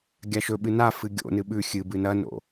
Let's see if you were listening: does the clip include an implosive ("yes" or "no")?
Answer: yes